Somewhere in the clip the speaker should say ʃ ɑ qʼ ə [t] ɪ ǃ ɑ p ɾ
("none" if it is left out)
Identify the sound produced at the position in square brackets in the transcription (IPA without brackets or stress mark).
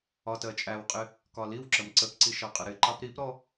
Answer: ɾ